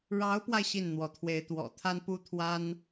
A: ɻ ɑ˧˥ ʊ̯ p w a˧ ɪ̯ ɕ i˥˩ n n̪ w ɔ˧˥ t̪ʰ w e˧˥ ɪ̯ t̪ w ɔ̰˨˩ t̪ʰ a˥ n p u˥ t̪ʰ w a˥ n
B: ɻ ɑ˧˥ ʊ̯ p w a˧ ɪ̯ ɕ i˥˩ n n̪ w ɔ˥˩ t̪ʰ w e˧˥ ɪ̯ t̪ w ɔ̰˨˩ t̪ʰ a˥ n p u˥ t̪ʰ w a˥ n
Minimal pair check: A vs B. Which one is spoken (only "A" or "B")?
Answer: A